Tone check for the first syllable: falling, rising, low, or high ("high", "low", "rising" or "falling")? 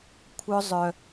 high